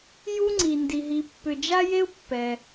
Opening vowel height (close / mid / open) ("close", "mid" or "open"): close